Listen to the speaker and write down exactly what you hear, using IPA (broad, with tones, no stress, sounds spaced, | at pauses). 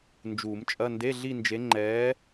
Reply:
n d͡ʒ uː˨˩˦ m t͡ʃʼ ɐ˧˥˧ n d e˧˥˧ ɮ i˥˧ n d͡ʒ e˧˥ ŋ͡ǃ ɛː˧˥